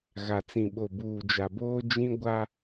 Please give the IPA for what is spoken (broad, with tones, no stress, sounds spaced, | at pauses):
ɣ a˨ t͡s ĩ˨ ɓ o˨ b uː˨ d͡ʒ a˨ b oː˦ d͡ʒ ĩ˦ ɡʷ a˦